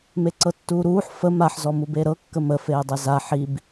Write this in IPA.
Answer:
m e ǀ ɤ tː uː ɾ uː ħ f ə m a ħ z ɔ m u b e ɾ ɤ kː ə m ə f eː dˤ e z a ħ i b

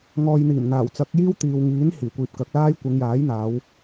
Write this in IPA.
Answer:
ŋ ɔː˨ j n̪ iː˨˩ m n̪ aː˨˩ w t͡s ɐ˨˥ k̚ j iː˥ w t̪ iː˨ w ŋ iː˨˥ n h iː˨˩ kʷ iː˨ p̚ k ɐ˨˥ k̚ l aː˥ j kʷ ɪ˨˧ ŋ j aː˨˥ j n̪ aː˨˧ w

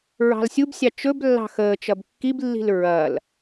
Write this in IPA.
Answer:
ɹ ɑ̤ l sʲ u b sʲ ɑ t͡ʃ ɵ b lː ɑ̤ x əː t͡ʃ ɐ b kː i b lː i̤ l ɹ ɐː l

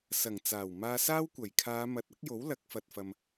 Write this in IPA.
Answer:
s ɐ˨˩ ŋ t͡s aː˨˩ w m aː˧ s aː˥ w kʷ ɐ˨˩ j kʰ aː˨˧ m ɐ˨˥ t̚ ɐ˨˥ k̚ j o˨˥ w l ɐ˨˥ k̚ f ɐ˨ t̚ f ɐ˨ m

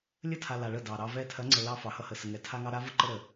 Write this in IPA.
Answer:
lʲ ə˦˨ tʰ a˨ l a˨ ɭ ə˦˨ d ɑ˨ ɾ ɑ˦ v ɛ˦ tʰ ɐ˨˦ ŋ͡ǀ ə˨ l ɑ˦ f ɑ˨ h ʌ˦ h ə˨ s ə˨ ŋ ɛ˨ tʰ a˦ ŋ ɑ˦ ɾ a˦ v ʌ˦ ǃ ə˦ ɾ ə˨

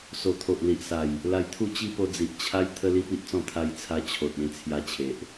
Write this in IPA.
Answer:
s o˨˩ t̪ʰ o˨ ʔ l i˨ ʔ s a˨˩ j | l a˧ j t̪ʰ u˥˧ t͡ɕ i˦ p o˧ d͡z i˨ ʔ t͡ɕʰ a˦ j t̪ʰ ə˦ l i˦ p i˦ ʔ t͡s ɔ̃˥˧ t̪ʰ a˧ j t͡sʰ a˧ t͡ɕʰ o˨ t̚ ẽ˧ t͡sʰ j a˧ t͡ɕʰ e˨ ʔ

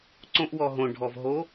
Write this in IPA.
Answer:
ǀ õ ʔ w ɔ ɦ õ ɖʱ ɔ v ɦ o

